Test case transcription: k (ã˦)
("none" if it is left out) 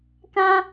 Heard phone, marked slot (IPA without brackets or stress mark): ã˦